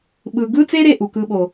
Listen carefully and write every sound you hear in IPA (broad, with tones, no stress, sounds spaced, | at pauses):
ɓ ɯ˨ ɡ ɯ˦ t͡s e˦ ɾ e˦˨ ʔ u˨ k ɯ˧ ɓ o˨